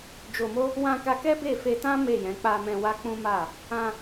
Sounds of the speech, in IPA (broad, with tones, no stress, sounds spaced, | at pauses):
d͡ʒ o˧ m o˦ | w ã˧ k a˧ k ɛ˦ b e˦˨ f e˧ t ã˦ m e˦˨ j ɛ̃˨˦ k͡p a˧ m ɛ̃˧ w a˦ k͡p ũ˦ m a˦˨ | ã˧